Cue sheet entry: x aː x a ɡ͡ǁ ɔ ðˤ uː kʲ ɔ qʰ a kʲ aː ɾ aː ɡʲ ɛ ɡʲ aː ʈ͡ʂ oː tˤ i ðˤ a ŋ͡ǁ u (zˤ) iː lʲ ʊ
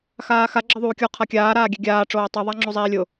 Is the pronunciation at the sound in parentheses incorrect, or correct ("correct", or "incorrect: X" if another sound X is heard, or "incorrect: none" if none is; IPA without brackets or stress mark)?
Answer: correct